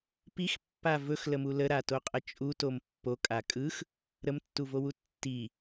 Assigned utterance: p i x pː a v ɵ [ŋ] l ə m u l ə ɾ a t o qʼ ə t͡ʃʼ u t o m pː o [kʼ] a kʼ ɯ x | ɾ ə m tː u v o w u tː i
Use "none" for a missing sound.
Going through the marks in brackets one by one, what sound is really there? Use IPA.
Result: x, kʼ

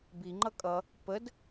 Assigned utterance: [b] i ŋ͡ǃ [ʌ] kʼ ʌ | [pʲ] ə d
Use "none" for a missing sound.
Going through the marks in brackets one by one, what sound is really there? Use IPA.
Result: b, ʌ, p

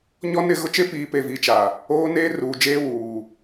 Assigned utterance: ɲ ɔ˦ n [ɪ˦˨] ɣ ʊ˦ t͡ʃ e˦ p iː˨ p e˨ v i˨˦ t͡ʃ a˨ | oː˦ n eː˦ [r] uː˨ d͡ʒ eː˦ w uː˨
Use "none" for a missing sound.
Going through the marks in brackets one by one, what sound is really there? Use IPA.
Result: ɪ˦˨, r

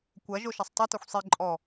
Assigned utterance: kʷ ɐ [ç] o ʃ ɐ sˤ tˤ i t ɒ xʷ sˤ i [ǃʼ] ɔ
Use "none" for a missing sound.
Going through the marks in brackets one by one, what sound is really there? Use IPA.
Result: ʒ, ǃʼ

